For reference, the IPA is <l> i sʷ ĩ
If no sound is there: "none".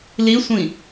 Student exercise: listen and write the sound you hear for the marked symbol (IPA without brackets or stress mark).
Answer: l